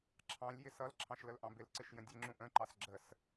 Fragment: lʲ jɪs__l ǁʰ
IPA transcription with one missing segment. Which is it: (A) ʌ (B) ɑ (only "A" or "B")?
A